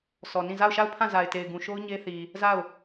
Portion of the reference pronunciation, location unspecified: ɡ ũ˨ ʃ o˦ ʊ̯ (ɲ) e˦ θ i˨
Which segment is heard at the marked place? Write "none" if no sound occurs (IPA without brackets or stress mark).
ɲ